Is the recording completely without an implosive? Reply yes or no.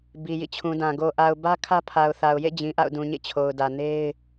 yes